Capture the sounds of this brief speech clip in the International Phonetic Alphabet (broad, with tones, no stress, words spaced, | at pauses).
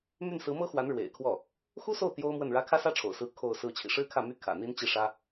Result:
my˥˩nsɹ̩˧˥mɤ˥xwa˧˥n ɻwḛ˨˩ɪ̯kʰwɔ˥˩ | xu˥so˥˩ʊ̯ t̪jo˥ʊ̯mwə˥˩nɻä˥ kʰä˥sä˥ʈ͡ʂʰo̰˨˩ʊ̯sɹ̩˧˥ kʰo˥˧ʊ̯sɹ̩˥˩ t͡ɕʰḭ˨˩ʂɻ̩˥kʰä˥˩ my˥kʰä̰˨˩ n̪i˥nt͡ɕi˥˩ʂä˥